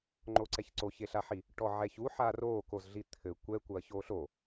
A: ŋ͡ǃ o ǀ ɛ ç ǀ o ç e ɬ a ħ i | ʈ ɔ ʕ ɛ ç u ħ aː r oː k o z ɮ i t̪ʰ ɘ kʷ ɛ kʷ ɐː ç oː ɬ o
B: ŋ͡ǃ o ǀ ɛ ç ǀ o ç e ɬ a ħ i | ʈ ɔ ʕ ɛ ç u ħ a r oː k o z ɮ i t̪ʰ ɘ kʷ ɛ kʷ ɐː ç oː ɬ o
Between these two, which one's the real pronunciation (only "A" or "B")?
B